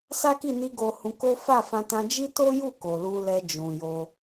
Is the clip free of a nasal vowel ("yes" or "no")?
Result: no